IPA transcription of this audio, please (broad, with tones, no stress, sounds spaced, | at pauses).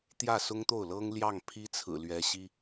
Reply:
t̪ j ä˥˩ s ʊ˥ ŋ t̪ o˥˩ ʊ̯ l ɤ˥ ŋ l j ɑ˥˩ ŋ pʰ i˥ t͡sʰ ɹ̩˨˩ l ɥ ɛ˧˥ ɕ i˥